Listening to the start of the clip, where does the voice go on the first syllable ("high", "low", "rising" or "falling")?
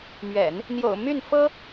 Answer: low